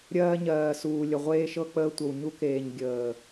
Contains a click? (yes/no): no